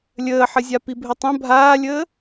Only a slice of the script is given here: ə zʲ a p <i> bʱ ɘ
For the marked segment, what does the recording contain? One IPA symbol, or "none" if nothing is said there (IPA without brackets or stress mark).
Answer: i